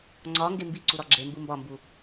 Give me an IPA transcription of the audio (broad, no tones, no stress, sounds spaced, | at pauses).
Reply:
ŋ͡ǀ ɒ ŋ ɡ e m b i ǀ u ɾ ɒ ɡ͡ǁ e m b u m b ɒ m b u